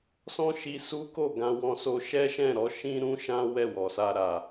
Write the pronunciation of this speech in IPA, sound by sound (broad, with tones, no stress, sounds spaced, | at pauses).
s ɔ̃˦ ʃ i˧ s u˦ k o˦˨ ɡ ã˧ w ɔ̃˧ s o˧ ʃ ɛ˦ ʃ ɛ̃˦˨ ɾ ɔ˨˦ ʃ ĩ˦ ɾ ũ˦ ʃ ã˦ w ɛ˦˨ w ɔ˨ s a˧ ɾ a˨